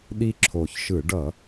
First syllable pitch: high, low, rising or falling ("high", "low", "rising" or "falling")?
high